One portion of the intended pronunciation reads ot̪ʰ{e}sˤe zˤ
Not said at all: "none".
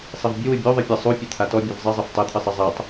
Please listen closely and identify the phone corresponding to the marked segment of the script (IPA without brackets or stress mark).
ɨ